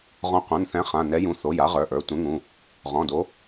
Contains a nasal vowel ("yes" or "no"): yes